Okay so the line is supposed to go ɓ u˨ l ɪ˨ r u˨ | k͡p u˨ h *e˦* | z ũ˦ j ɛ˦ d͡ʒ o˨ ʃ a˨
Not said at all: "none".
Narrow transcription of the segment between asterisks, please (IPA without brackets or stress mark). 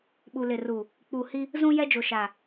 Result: i˦